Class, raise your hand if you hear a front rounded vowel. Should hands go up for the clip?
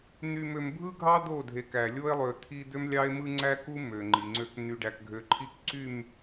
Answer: yes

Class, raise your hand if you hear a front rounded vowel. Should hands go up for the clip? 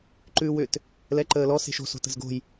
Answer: yes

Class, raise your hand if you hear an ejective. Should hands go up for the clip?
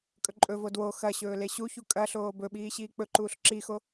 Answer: yes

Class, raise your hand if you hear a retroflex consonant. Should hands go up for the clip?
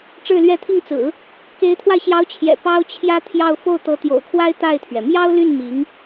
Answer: yes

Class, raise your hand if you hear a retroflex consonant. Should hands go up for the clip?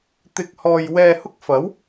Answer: no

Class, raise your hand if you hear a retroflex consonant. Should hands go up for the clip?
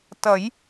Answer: no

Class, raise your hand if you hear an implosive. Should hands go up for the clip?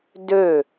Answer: no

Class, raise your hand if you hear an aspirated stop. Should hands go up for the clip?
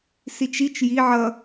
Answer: no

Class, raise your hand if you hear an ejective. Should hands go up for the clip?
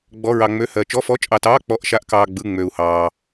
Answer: yes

